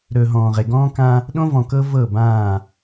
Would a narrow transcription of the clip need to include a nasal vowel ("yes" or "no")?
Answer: yes